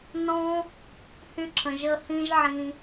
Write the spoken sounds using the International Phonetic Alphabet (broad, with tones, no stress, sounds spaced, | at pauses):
n ɔ̃˦ | h y˧ ǁʰ ə̃˨ ʒ ə˧ h ĩ˦ ʒ ʕ ĩ˧